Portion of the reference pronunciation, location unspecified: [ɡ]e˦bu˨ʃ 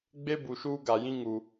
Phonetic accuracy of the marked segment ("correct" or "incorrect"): incorrect